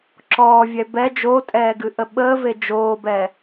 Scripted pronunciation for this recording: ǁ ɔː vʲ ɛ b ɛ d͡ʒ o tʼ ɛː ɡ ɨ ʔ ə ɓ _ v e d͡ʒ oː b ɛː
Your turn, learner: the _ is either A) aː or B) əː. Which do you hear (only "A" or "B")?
B